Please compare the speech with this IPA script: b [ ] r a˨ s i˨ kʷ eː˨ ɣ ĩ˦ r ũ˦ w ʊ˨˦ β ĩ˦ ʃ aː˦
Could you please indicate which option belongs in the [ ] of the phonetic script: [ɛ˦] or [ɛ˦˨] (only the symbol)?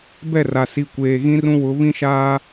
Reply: ɛ˦˨